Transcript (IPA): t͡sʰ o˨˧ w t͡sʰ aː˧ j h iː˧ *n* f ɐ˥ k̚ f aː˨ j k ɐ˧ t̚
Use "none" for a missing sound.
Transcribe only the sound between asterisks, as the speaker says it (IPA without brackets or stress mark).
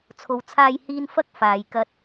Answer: n